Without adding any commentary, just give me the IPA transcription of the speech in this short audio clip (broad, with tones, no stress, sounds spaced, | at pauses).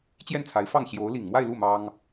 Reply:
t͡ɕ j ɛ˥˩ n t͡sʰ a˧˥ ɪ̯ f ɑ˥˩ ŋ ɕ j o˧˥ ʊ̯ l i˨˩ ŋ m w a˥˧ ɪ̯ l u˥˩ m ɑ˥ ŋ